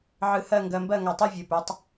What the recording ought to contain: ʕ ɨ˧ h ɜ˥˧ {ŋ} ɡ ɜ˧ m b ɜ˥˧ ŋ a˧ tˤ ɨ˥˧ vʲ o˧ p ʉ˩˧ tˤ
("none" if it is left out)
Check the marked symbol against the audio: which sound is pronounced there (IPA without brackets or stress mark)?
ŋ